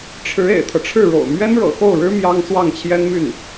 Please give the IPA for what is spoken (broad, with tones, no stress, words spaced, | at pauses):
ʈ͡ʂʰɻ̩˧˥ ḛ˨˩ɪ̯t̪ʰɤ˦ʈ͡ʂʰɻ̩˥˩ɻo̰˨˩ʊ̯ mɥɛ˥nɻɤ̰˨˩xo˥˩ʊ̯ɻɻ̩˥ mjɑ˥ŋ swɑ˥˩ŋt͡ɕʰjɛ˥nmy˥˩n